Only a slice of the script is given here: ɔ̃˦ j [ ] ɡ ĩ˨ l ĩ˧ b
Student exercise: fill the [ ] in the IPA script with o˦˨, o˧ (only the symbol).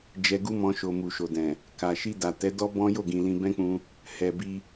o˦˨